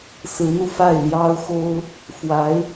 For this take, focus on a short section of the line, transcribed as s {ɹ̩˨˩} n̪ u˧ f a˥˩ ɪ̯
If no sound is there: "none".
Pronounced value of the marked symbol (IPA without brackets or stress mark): ɹ̩˧˥